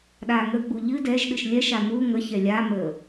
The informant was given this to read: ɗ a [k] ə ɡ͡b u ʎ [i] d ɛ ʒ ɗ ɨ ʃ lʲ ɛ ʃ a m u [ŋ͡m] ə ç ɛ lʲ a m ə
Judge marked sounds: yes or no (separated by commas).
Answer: no, no, no